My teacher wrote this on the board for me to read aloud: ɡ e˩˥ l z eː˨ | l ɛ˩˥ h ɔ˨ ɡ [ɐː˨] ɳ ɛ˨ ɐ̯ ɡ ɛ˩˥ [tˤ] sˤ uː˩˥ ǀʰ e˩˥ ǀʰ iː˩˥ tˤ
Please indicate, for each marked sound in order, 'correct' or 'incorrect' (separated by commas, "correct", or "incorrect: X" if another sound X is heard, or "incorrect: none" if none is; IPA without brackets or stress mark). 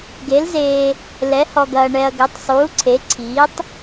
correct, correct